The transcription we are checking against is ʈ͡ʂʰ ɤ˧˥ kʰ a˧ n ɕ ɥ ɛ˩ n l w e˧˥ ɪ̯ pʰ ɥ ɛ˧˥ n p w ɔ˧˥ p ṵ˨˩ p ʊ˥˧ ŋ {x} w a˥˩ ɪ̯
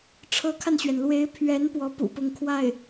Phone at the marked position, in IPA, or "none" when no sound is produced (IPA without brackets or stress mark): kʰ